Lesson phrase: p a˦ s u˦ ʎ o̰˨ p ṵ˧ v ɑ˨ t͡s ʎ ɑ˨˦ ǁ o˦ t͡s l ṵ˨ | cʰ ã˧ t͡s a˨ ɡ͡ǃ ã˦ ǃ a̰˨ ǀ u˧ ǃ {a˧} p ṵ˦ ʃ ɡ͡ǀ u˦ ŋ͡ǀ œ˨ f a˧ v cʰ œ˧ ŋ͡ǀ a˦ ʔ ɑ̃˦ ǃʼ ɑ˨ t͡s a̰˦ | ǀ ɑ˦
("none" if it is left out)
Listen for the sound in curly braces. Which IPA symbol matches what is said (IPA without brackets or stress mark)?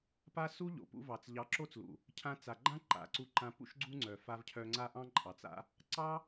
ã˧